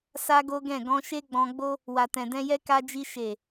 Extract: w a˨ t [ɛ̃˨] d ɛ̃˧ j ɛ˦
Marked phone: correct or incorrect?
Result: correct